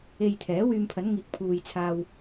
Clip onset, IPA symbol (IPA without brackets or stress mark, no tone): e